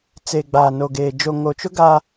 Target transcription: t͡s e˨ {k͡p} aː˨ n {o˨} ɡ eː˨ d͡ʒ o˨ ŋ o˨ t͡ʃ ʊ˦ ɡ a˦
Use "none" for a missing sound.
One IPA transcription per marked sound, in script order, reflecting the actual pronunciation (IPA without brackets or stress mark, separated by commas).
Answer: ɡ͡b, o˨